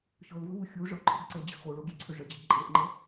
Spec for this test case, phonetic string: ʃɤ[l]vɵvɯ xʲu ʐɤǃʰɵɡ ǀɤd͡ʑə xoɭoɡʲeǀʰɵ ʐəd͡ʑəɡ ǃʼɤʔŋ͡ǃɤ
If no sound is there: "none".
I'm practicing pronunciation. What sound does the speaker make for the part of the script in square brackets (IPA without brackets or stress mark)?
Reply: l